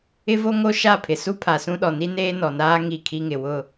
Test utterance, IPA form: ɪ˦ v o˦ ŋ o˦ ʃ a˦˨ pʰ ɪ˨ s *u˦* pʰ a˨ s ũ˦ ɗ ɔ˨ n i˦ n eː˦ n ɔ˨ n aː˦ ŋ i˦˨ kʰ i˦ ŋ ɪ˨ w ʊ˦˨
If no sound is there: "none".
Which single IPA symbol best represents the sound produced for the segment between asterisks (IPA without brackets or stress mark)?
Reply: u˦